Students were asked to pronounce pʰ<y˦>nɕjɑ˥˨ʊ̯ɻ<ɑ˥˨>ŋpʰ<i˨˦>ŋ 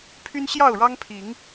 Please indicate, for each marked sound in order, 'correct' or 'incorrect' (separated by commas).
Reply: correct, incorrect, correct